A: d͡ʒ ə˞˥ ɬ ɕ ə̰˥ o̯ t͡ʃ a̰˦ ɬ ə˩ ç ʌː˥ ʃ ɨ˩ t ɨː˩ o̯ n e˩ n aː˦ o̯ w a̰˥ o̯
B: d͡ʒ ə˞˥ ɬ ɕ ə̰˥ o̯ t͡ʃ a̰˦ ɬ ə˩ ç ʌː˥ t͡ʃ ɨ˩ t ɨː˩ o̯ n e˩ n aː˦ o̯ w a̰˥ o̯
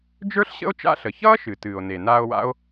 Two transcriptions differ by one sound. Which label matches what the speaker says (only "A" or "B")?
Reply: A